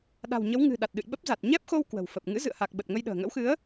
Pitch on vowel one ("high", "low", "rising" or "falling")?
low